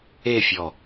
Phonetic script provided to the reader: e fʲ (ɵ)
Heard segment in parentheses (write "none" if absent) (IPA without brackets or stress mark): ɔ